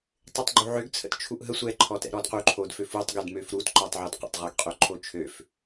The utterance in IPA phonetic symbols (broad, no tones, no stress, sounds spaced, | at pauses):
tˤ ʏ tˤ ɡ͡ǃ u ʕ ʏ ɡ t͡sʰ ə̰ t t͡ʃʰ u ʔ ɦ ə sʷ ɛ ǃʰ ɔ t ɛ̰ ɾ ɔ d q u ǃʰ o d f ø f u tˤ ɡ ʏ d m ø f ɾ u t ǃ ɔ tˤ ʕ ə˞ d q ə̰ tˤ ʁ u ɡ qʼ ø ǃʰ o t͡ʃʰ ø f